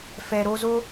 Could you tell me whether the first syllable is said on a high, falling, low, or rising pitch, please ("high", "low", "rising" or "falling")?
low